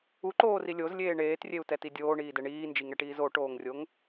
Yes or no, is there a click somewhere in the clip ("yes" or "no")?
yes